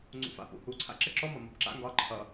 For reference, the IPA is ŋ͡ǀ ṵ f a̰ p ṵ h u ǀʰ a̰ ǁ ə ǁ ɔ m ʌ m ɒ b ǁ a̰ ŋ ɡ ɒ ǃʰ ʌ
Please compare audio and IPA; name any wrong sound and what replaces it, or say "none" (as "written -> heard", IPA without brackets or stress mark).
none